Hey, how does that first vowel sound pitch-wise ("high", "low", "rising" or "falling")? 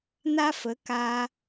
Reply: high